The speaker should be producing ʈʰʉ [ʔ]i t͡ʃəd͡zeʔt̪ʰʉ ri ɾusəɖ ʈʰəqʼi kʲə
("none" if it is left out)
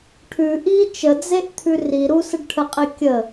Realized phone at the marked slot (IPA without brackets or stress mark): ʔ